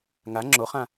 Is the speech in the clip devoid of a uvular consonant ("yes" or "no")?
no